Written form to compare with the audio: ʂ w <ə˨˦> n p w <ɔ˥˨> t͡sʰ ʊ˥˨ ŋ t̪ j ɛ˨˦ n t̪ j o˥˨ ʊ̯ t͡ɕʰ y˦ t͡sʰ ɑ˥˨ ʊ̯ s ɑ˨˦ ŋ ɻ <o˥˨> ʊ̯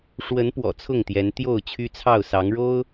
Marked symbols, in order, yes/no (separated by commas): yes, no, no